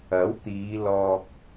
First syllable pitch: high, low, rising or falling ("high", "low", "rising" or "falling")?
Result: rising